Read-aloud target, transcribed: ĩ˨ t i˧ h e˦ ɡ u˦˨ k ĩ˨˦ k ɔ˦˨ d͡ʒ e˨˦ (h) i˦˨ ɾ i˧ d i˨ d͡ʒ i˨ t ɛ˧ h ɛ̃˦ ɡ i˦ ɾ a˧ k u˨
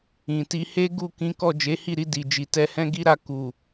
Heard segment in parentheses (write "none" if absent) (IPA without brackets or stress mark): h